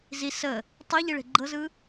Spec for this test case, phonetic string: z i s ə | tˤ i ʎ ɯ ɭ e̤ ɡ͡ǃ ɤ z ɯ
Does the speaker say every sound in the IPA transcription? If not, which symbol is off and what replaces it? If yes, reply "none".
none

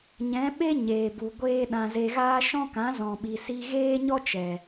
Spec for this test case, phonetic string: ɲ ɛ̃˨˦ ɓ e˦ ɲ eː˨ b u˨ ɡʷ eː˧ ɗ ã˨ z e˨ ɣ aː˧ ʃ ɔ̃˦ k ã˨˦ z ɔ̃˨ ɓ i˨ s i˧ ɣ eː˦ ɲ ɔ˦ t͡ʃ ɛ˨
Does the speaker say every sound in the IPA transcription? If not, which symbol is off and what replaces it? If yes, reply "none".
none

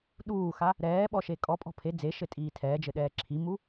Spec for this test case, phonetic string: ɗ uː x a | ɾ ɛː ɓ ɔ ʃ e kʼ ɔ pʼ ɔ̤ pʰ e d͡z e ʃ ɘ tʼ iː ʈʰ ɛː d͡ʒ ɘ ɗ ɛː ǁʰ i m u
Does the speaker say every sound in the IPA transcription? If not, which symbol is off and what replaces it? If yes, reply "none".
ʈʰ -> tʰ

